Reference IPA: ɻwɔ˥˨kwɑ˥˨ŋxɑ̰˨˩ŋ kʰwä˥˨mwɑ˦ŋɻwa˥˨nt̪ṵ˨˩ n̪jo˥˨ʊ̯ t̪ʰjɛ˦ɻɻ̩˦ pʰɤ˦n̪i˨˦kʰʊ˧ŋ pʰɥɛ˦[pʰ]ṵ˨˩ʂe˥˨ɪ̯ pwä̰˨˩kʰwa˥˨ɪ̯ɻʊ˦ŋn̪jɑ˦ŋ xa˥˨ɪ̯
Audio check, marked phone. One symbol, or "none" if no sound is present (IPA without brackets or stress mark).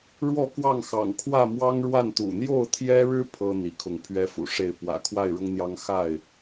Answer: f